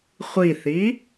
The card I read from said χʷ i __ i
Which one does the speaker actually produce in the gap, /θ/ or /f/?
θ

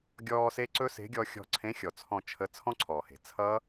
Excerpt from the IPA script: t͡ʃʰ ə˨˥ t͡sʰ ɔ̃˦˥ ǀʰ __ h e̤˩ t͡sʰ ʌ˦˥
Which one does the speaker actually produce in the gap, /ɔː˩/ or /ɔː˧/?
ɔː˩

